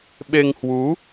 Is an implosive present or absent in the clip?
present